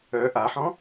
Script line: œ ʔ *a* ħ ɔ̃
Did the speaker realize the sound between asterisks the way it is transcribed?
yes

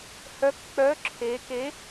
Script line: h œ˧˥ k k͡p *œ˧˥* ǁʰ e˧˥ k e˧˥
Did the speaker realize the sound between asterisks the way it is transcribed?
yes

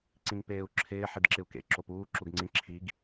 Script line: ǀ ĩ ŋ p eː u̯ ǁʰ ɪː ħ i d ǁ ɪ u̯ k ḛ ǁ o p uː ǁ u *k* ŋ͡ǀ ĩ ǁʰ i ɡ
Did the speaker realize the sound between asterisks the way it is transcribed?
no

